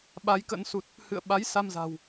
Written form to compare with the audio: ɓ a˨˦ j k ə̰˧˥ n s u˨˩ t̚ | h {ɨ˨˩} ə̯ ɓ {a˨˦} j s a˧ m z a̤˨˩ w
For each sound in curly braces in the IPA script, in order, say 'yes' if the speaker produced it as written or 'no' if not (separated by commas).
no, yes